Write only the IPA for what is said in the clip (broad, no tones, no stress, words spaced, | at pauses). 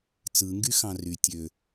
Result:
t͡sɯ ŋɡyxɑ̃ry tʲø